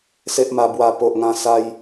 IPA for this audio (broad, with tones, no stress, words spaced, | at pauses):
se˦ʔma˧bwa˧ po˨ʔŋã˧sa˧j